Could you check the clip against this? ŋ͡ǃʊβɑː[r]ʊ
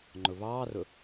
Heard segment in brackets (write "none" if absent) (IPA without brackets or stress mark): r